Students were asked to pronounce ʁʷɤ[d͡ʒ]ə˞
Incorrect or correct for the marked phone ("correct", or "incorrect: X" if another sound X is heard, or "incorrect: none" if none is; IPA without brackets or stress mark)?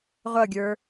incorrect: ɡʲ